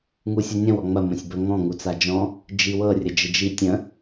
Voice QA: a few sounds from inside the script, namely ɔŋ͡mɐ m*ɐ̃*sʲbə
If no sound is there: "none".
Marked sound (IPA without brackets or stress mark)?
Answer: ə̃